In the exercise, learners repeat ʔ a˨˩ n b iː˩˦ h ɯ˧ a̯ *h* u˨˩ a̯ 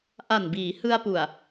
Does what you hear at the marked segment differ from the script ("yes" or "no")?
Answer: yes